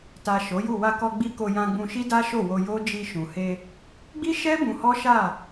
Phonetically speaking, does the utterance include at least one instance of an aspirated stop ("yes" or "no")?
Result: no